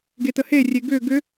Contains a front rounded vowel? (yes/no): yes